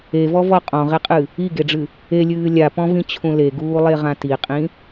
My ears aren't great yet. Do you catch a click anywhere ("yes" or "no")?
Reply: no